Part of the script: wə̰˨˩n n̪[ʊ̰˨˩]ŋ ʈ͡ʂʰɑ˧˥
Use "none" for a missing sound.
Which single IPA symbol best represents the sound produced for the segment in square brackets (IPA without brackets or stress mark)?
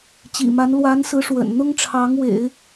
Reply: ʊ˥